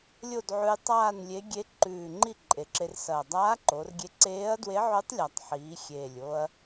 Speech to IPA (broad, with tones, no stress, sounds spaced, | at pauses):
lʲ o˥˧ d ʕ ʉ˧ j tˤ aː˥˧ n lʲ e˧˥ ɡʲ e˧˥ ǃ ʉː˨˩ ŋ͡ǃ i˥˧ ǃʼ e˩˧ ǁ e˧ r s ɐː˨˩ dˤ aː˧˥ ǃ o˩˧ r ɡʲ e˧ ǀ eː˧˥ ɐ̯ d w e˧˥ ʕ ʉ˧˥ tˤ lʲ a˨˩ tˤ ħ iː˩˧ xʲ eː˨˩ lʲ o˧ ɐ̯